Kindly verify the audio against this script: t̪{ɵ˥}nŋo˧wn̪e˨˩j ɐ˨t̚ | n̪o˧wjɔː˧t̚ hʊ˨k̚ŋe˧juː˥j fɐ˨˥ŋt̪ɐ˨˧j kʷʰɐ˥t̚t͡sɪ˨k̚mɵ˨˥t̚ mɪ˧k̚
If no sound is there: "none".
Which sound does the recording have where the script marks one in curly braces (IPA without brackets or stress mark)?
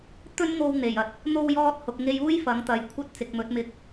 ɵ˥